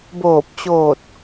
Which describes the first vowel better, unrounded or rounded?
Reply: rounded